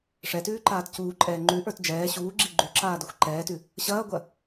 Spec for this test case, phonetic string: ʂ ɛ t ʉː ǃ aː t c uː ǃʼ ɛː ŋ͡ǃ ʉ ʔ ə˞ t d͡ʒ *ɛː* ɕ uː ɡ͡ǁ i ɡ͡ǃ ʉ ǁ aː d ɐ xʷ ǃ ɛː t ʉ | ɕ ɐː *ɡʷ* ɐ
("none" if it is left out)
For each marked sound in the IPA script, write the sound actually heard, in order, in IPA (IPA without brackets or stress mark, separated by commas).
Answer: ɛː, ɡʷ